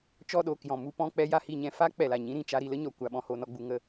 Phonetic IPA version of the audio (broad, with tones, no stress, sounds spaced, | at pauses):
t͡ʃ ɔ˦˨ ɗ oː˦˨ k j ɔ̃˨ m u˧ p ɔ̃˧ k͡p ɛ˧ j a˦ h i˧ ɲ ɛ̃˧ f a˦ k͡p ɛ˨ l a˨ ɲ ĩ˦ ɾ ĩ˨ t͡ʃ a˦ ɾ i˧ l ə˦ ɲ ɔ˨ kʷ a˧ ɓ ɔ̃˧ h oː˧ n ɔ˧ ɡ͡b u˨ ŋ ə˦˨